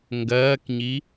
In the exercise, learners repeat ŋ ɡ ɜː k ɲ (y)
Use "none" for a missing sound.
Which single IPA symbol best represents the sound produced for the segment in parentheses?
i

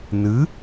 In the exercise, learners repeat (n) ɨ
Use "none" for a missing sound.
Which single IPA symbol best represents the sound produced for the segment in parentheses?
n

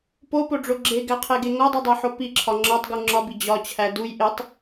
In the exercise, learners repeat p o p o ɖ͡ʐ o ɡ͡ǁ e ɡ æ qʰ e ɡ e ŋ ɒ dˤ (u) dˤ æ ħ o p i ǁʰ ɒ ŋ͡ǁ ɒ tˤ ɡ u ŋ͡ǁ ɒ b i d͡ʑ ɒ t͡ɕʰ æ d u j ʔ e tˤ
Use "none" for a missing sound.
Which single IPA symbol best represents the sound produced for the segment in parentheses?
u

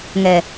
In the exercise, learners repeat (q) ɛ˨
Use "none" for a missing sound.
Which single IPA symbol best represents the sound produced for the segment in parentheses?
ŋ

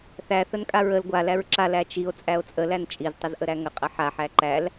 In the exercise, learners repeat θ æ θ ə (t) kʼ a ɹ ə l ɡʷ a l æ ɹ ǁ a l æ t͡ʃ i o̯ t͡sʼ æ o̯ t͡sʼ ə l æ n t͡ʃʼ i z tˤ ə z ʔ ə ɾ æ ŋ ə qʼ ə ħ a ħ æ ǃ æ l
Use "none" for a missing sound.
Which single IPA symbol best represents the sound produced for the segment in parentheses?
n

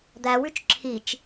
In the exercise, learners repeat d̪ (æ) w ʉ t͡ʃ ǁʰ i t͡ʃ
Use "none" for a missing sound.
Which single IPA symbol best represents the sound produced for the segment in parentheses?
æ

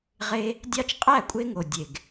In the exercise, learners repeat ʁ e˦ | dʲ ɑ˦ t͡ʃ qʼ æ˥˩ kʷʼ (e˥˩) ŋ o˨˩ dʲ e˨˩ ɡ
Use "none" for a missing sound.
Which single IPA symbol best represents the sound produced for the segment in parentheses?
e˦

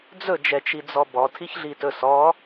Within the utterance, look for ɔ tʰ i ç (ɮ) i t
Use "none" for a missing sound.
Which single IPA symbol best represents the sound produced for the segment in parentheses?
ɮ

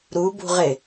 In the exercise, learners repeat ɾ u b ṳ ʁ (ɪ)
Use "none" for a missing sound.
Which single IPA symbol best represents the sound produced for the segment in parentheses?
ɪ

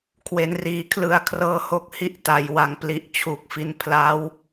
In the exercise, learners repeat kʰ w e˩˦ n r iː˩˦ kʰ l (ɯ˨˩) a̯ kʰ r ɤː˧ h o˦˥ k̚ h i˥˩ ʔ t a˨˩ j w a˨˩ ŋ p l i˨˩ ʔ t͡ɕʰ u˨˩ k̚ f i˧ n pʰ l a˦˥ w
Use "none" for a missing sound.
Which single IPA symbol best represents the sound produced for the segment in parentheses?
ɯ˨˩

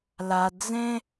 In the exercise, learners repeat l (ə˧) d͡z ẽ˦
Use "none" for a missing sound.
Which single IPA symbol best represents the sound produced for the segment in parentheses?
a˧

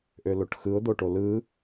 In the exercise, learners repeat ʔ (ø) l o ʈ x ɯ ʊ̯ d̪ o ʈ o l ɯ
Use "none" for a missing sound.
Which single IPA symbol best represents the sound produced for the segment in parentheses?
ø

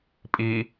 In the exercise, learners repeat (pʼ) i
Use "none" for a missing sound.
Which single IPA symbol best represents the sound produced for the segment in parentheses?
pʼ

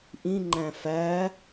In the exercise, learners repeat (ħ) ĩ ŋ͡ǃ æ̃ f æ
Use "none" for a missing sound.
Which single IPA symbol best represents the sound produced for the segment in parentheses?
ʔ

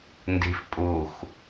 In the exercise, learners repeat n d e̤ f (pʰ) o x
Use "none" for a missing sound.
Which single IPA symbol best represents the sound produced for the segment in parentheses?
pʼ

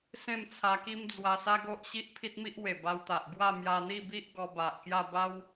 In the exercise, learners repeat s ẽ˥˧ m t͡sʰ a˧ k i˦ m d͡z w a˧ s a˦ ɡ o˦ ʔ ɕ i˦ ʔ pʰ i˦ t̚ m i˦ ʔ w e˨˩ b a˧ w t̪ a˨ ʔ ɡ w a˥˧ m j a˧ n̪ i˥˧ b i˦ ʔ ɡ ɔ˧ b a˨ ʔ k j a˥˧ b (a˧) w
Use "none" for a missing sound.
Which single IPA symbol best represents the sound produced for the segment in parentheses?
a˦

